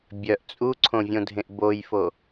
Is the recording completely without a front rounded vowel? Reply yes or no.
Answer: no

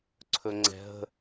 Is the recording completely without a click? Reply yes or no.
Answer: no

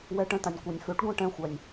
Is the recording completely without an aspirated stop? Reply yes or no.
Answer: yes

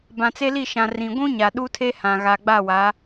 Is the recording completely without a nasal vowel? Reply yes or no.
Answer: no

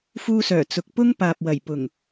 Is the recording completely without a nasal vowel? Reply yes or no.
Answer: yes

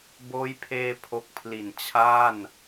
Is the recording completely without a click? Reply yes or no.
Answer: yes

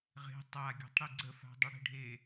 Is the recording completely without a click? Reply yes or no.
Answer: no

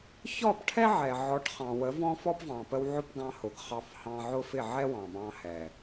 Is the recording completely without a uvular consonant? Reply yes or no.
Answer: no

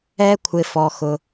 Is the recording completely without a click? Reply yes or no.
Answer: yes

